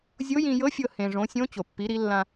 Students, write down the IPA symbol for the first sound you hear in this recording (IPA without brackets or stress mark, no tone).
zʲ